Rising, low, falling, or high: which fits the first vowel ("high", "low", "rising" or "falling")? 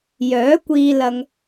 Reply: rising